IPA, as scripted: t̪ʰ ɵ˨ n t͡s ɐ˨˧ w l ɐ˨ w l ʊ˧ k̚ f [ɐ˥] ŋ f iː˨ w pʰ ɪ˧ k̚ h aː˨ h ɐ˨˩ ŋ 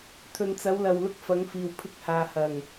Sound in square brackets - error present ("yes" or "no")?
yes